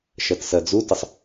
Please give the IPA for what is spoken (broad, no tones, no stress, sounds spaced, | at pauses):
ʃ ɜ t s ɜ d͡z u t ə sˤ